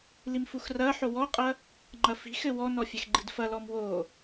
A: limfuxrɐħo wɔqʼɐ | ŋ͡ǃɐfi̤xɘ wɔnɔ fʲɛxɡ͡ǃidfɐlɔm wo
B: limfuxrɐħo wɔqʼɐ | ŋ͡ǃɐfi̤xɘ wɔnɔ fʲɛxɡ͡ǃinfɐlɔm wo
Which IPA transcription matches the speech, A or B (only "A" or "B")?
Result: A